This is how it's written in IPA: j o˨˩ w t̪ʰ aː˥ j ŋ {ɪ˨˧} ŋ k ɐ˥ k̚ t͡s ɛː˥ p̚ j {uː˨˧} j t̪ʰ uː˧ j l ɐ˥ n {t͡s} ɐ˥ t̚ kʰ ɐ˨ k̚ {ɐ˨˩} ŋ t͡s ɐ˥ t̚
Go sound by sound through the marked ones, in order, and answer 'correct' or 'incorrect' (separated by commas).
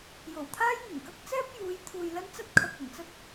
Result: incorrect, correct, correct, correct